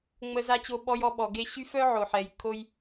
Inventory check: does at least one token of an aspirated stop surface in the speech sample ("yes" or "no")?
yes